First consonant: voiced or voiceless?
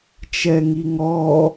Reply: voiceless